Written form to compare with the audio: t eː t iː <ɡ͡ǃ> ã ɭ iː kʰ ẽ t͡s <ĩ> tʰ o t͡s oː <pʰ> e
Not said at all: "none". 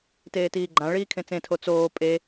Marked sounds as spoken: ɡ͡ǃ, ẽ, pʼ

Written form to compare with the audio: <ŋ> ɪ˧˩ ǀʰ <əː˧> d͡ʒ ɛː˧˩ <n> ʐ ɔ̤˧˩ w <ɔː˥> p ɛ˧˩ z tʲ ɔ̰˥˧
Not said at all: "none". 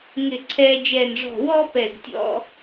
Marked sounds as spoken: ŋ, ɛː˧, n, ɔː˥

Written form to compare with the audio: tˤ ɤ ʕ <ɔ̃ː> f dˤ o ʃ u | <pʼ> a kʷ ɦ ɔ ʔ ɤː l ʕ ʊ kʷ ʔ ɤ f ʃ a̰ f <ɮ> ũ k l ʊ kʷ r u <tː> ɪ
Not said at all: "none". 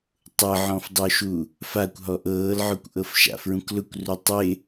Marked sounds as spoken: ɔ̃, f, ɹ, tˤ

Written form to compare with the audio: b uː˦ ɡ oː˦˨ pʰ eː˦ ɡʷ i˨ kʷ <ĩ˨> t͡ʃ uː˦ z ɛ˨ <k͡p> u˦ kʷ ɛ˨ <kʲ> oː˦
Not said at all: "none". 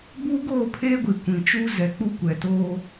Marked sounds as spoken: ĩ˨, k͡p, t

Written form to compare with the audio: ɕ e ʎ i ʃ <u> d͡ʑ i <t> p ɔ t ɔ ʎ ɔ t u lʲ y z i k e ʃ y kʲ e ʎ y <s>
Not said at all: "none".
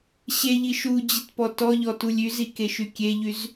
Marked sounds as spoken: u, t, z

